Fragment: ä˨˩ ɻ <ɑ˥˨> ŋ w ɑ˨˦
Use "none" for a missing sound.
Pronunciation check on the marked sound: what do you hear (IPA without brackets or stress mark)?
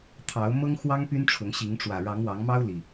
ɑ˨˦